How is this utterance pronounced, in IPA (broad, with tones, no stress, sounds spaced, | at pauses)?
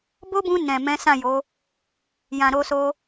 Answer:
b o˦ b ũ˧ n ɛ̃˨ m ɛ̃˨˦ s ã˦˨ j o˨˦ | j ã˨ ɾ o˧ s o˧